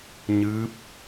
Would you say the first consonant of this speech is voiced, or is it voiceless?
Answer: voiced